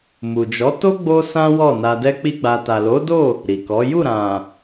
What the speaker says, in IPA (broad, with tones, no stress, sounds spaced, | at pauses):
m u˨ d͡ʒ ɔ˨˦ t o˦ ɡ͡b o˦ s ã˦ w ɔ˦˨ n a˧ d ɛ˦ k͡p i˦ ɡ͡b a˧ t a˨ l o˨˦ d o˦˨ | ɾ i˨ k ɔ˨˦ j u˦˨ ɾ ã˨